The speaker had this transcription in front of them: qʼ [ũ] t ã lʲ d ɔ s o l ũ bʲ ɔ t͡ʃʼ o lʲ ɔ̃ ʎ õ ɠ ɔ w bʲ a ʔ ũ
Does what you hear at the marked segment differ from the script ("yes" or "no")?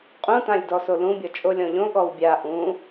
no